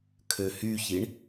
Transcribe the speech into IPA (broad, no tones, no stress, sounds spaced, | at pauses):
kʰ ø h y ç i ɳ